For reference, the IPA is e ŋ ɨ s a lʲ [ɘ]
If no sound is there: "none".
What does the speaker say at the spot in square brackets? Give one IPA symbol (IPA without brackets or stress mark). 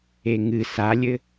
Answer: ɘ